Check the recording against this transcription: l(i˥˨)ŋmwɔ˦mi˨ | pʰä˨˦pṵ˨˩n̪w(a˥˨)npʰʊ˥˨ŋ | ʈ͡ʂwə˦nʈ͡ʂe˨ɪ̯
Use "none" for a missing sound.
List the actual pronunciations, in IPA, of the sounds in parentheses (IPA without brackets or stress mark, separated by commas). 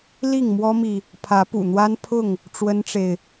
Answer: i˥˨, a˦